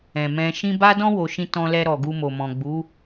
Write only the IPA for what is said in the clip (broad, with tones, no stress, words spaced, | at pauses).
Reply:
ɛ̃˨mɛ̃˧ ʃĩ˧ba˦dɔ̃˦ wo˧ʃĩ˦ tɔ̃˧lɛ˧ɾɔ˨ ɡu˧mo˨mɔ̃˨ɡ͡bu˨˦